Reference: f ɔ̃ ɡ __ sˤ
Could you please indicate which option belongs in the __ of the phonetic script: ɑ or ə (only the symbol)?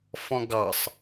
ɑ